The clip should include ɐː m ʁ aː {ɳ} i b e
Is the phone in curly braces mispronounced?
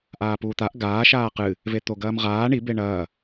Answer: no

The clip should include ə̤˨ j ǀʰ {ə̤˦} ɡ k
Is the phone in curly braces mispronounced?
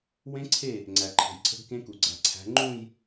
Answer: no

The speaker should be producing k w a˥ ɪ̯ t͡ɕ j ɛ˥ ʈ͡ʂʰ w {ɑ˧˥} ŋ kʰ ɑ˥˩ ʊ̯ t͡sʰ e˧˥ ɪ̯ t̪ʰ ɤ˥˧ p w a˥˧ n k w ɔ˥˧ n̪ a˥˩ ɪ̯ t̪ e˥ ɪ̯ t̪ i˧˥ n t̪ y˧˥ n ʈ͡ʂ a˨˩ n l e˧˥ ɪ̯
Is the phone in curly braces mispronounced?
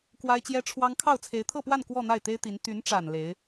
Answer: yes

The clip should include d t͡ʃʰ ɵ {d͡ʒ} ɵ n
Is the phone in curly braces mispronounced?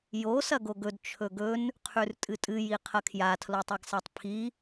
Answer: yes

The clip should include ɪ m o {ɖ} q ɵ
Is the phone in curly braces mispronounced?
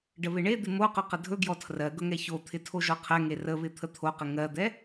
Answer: yes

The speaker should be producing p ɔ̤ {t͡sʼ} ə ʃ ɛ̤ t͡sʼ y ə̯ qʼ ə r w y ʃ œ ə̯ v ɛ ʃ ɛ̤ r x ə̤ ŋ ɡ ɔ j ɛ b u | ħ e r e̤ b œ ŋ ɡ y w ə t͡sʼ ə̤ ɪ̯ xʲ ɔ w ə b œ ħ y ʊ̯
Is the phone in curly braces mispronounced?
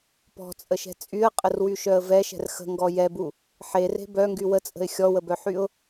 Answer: no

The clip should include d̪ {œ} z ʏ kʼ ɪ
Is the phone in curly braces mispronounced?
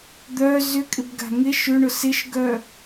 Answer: no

